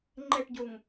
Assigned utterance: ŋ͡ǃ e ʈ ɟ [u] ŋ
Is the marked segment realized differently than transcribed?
no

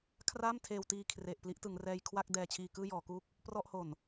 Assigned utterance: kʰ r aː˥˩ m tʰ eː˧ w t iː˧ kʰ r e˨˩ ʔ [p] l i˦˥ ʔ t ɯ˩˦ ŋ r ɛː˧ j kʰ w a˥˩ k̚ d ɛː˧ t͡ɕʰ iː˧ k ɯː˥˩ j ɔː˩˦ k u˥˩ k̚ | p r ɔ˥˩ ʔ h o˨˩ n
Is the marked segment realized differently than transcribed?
no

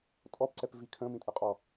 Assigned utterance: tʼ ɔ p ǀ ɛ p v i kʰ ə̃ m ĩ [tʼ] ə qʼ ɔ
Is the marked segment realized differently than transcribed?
no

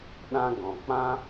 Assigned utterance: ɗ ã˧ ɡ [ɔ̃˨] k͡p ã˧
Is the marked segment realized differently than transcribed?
no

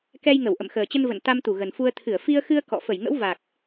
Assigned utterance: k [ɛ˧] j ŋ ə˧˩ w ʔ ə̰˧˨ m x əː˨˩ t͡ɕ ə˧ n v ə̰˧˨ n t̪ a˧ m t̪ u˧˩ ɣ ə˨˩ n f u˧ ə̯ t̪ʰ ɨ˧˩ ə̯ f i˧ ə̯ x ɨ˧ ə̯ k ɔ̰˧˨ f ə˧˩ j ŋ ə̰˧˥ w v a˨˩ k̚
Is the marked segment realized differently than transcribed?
no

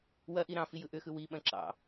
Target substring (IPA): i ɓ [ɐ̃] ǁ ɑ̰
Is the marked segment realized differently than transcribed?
no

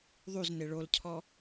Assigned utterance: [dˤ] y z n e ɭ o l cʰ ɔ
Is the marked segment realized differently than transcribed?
yes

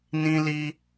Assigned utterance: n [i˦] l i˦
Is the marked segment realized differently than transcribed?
yes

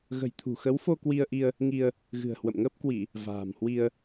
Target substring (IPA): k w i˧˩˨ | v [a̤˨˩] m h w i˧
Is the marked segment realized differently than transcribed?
yes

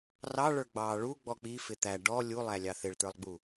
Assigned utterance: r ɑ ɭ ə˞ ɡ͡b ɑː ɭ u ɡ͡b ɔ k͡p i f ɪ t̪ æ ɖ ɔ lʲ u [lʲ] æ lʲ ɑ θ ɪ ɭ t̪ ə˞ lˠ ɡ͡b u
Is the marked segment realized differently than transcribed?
yes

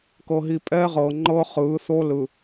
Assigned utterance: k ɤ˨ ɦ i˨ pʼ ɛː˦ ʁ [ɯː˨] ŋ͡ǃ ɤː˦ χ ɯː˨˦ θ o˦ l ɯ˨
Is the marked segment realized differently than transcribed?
yes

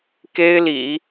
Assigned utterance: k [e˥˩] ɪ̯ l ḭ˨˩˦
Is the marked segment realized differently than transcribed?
yes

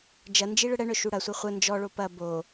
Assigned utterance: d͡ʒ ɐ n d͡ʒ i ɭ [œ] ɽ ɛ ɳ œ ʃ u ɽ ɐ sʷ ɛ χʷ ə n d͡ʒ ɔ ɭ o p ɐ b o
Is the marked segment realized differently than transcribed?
yes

